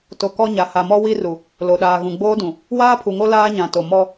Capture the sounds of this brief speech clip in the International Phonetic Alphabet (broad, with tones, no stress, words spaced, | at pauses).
to˨ kɔ˦ɲa˨ ha˨mɔ˦wi˦ru˨ | lo˨ɗaː˨ɣũ˨ ɡ͡boː˦dũ˨ | waː˦pʰu˨ŋo˦ laː˦ɲã˨to˨ mɔ˦